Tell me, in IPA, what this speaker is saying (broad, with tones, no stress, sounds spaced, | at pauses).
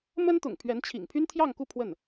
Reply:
m ə˥ n t̪ ʊ̰˨˩ ŋ pʰ ɥ ɛ˧˥ n t͡ɕʰ ḭ˨˩ ŋ pʰ y˥ n t̪ʰ j ɑ˥˧ ŋ k u˥˧ pʰ w ə˥˩ n